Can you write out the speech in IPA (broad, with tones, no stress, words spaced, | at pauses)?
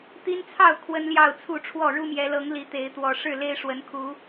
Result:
t̪i˦nt͡sʰɑ˥˨ʊ̯ kʰwə˦nljɑ˥˨ʊ̯t͡sʰu˥˨ʈ͡ʂʰwɔ˥˨ ɻu˦mjɛ˨˦lɤ˨˦ŋ li˨˦t̪e˨˦ɪ̯ t̪wɔ˨˩ ʂɻ̩˥˨le˦ɪ̯ʂwə˨˦nkʰu˨˦